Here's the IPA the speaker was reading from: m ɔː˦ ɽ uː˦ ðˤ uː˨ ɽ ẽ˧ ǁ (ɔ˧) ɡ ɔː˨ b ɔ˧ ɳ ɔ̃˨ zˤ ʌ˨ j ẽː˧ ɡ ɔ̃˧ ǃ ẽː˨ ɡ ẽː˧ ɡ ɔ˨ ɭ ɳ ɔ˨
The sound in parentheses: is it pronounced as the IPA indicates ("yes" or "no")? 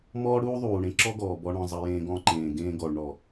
no